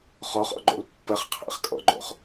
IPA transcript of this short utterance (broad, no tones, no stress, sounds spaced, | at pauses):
χ ɔ χ ɔ̰ ɡ͡ǃ o̰ l pː ə χ qʰ æ̰ χ kʼ ɔ̰ ɡ͡ǃ o̰ χ